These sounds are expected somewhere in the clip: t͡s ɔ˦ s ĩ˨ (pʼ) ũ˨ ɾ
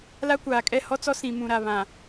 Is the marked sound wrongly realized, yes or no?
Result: yes